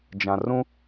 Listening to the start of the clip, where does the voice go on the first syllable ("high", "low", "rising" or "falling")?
low